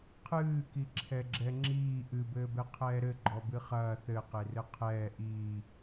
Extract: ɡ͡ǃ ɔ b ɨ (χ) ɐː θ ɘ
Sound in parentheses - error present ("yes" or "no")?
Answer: no